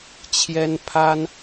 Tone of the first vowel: high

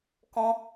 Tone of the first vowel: high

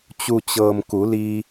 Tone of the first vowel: low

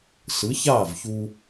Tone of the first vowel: rising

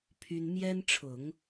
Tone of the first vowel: high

